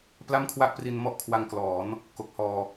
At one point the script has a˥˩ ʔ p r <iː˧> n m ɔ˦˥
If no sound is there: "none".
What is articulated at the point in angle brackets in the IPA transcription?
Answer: i˧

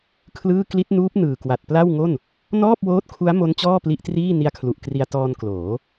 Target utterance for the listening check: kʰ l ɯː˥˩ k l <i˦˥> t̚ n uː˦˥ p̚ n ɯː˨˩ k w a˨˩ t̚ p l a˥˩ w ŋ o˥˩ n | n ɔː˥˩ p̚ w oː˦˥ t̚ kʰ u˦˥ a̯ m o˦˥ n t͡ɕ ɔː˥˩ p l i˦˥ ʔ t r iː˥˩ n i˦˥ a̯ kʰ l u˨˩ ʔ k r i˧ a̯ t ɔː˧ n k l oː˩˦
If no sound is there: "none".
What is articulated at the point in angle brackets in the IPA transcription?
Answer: i˦˥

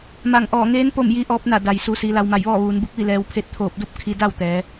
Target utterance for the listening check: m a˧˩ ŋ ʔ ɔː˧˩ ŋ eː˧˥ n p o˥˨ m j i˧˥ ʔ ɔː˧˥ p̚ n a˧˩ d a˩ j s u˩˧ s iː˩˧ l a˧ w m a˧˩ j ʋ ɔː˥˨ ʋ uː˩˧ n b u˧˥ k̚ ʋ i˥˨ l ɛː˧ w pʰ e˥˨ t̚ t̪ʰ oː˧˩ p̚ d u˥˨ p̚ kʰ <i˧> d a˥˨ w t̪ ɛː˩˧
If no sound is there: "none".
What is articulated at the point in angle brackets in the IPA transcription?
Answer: i˧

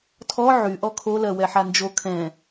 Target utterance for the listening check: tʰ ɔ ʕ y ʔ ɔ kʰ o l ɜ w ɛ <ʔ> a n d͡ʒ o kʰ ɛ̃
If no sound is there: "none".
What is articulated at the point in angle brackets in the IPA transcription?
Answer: ħ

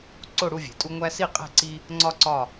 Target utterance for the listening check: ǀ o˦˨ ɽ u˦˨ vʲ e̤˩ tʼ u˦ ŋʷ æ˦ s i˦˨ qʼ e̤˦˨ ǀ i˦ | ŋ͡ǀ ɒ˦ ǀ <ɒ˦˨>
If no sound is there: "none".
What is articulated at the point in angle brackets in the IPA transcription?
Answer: ɒ˦˨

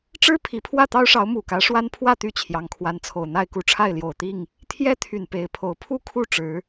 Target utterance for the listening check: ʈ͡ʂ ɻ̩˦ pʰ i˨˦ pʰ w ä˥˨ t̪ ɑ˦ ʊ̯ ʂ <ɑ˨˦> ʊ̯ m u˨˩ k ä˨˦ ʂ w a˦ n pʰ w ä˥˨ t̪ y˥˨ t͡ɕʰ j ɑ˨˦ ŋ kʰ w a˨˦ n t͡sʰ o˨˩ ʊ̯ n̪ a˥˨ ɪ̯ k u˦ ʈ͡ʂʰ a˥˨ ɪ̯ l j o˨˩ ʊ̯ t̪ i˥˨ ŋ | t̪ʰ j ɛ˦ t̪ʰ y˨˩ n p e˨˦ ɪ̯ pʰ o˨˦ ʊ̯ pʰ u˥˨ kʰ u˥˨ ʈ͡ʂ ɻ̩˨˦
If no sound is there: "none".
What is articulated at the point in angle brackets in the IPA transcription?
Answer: ɑ˨˦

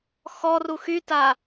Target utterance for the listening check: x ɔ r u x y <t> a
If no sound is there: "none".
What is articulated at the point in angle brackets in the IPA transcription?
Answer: t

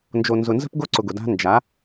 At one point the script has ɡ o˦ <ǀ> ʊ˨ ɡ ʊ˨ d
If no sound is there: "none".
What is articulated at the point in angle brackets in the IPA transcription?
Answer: ǀ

